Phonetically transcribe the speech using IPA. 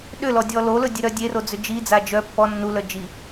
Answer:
ɗʏlɔdʲɔ lolɵdʲeɾœ dʲerod͡zʏ d͡ʒid͡za d͡ʒœ pːɔ nːulœ d͡ʒi

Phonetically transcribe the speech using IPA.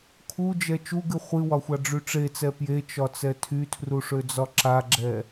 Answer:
kʰud͡ʒɛ t͡ʃuɡɨ χʷɨwɒxʷaɖ͡ʐy ʈ͡ʂet͡sɛ pjet͡ʃɒt͡sɛ tʰytʰruʂød͡zɒ ǁaɡ͡ǁɛ

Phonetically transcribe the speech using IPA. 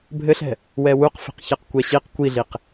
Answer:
bʱɘɬɛ̤ | wɛwuqfi̤q çɛqkʷɛɕiq kʷiɮiq

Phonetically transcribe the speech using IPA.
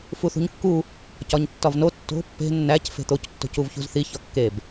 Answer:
fuθṳɲkːu | cɒɲtːɒvno tːo̤ pːe̤ nːæc fe̤t̪oc tːo̤cuvçṳzθi çɒkːeb

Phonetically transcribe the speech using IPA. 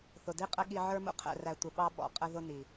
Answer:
θʊ˨di˦qʼə˦ ɠi˧ʕə˞˦mṵ˦ qʰɛ̰˨ræ˨ tʷɪ˨ɓɑ˦ɓɔ̰˨˦ qʼə˦ ðʊ˦ni˨

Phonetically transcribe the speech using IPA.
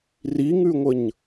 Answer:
riŋʉŋʷəɲ

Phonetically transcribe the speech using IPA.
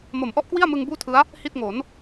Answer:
mo˩˦mʔɔ˦˥ʔ kwi˥˩a̯mɯ˧ŋ buː˥˩tʰɯ˦˥a̯ | hi˥˩t̚ŋo˩˦n

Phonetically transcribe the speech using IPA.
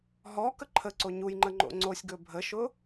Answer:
ɦɔ kəǃʰəǀo ɲujŋ͡ǃə ŋ͡ǃo̰ŋ͡ǀosʲɡɵ bʱəʃʊ

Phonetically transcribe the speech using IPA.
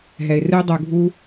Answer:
ɦɛ˨ɪ̯rɨ˦ɪ̯dˤɛ˧ʊ̯ɡʱu˦

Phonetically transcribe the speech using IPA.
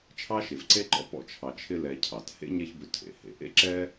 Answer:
t͡ʃʰɑ˥ʃe˨vǀe˥ǃɔ̰˦ pɔ̰˥t͡ʃʰɑ˨ t͡ʃʰɪ˦lɛ˨ cʰɑ˩t hḛ˥ɲɛ˦çbʏ˨ tʰḛ˩hḛ˨ʔḛ˥ ǁɛ˥

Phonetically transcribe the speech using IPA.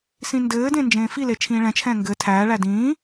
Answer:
sĩndɘːdẽ nd͡ʒẽːfile t͡ʃʰĩːɭɛ̃t͡ʃʰɛ̃ː ŋɡɘ tʰæːɭæ dĩː

